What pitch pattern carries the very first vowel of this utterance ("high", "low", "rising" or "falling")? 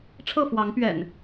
falling